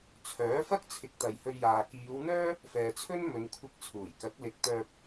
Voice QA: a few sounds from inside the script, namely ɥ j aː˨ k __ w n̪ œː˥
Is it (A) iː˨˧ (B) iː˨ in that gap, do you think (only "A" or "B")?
A